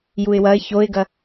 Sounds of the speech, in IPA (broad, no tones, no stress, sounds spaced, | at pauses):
j u ɪ̯ w ɐ ɪ̯ ç o ɪ̯ ɡ ɐ